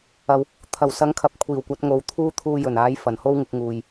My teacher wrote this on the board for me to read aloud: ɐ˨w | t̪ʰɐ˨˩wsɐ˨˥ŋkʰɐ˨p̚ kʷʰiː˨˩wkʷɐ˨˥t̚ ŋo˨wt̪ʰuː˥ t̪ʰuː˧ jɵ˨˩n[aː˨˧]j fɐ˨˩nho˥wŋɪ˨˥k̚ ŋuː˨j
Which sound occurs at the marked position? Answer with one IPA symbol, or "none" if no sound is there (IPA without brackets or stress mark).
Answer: aː˨˥